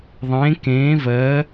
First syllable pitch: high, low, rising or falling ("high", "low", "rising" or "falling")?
rising